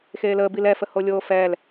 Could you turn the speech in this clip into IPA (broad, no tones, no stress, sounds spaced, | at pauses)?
x eː l əː b i l ɛ f ə h o lʲ oː f ɛː l